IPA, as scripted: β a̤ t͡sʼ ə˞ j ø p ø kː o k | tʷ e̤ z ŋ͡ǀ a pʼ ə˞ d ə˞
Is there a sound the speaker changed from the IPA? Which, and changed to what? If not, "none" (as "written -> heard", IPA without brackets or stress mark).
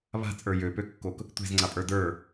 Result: none